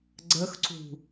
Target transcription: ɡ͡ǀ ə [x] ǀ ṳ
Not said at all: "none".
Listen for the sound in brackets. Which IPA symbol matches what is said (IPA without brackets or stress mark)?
x